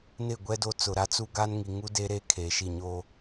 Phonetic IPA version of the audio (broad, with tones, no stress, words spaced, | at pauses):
nɪ˦˨ɡʷɛ˦do˦˨t͡sʊ˨ ɾa˨˦t͡su˦ ɡa˦n ŋi˨ŋu˦ de˦ɾe˦ kʰeː˨ʃi˦˨ɲoː˦